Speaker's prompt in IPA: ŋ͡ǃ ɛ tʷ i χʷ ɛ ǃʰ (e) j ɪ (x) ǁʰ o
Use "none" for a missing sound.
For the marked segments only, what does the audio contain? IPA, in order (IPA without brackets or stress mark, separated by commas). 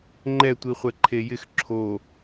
e, x